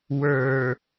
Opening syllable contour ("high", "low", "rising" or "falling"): low